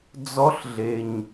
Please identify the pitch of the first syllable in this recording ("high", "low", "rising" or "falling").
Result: rising